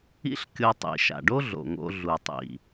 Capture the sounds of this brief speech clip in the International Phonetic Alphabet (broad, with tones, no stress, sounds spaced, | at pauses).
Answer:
ḭ˥ ɬ kʲ o˧ tˤ ḭ˩ ʃ a̰˩ ɖ o˥ ɮ o̰˩ ŋ o̰˧ ɮ u˩ tˤ ḭ˩